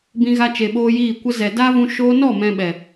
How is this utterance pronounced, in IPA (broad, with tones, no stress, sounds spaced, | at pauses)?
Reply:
b ĩ˧ ɣ a˧ t͡ʃ e˨ ɓ oː˧ j iː˦˨ kʷ ə˦ z ɛ˨ d aː˦ v ũ˧ ʃ oː˧ n ɔ˦˨ m ɛ̃˧ ɓ ɛ˨